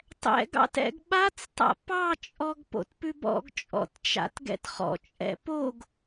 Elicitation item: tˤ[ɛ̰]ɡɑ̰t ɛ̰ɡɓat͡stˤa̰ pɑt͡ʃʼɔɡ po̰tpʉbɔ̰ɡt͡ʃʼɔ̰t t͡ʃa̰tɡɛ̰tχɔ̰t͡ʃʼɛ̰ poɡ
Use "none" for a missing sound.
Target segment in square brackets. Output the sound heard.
ɛ̰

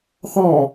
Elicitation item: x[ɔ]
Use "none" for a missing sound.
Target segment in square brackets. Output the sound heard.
ɔ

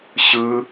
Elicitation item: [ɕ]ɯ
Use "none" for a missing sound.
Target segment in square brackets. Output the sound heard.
ɕ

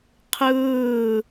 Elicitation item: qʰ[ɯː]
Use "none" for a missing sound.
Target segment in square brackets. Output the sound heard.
ɯː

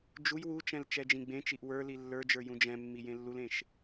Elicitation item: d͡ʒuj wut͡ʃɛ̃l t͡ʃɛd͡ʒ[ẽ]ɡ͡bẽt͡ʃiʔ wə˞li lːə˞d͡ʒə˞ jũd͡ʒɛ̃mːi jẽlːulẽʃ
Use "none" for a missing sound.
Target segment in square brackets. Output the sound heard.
ĩ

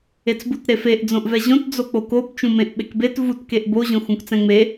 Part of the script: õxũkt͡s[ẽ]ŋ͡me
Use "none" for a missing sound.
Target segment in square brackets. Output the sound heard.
ɛ̃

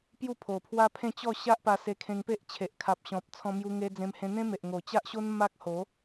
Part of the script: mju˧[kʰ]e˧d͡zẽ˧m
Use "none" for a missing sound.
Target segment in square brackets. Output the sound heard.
ŋ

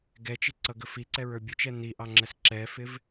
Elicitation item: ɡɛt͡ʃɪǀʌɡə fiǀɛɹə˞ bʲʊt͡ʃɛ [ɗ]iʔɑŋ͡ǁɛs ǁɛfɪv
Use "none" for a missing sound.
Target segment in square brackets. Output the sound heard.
n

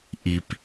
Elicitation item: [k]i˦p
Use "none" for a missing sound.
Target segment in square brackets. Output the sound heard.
ʔ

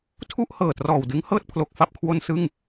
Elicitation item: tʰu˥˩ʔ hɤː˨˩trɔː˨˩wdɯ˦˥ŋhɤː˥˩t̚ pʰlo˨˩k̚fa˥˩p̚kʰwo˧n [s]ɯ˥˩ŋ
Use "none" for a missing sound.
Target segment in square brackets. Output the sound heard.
s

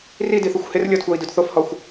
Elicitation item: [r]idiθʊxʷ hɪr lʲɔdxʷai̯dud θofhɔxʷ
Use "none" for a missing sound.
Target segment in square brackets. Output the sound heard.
r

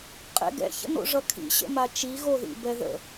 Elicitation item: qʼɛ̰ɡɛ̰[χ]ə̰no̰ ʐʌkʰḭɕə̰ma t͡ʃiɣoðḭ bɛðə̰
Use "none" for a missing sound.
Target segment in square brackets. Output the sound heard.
ç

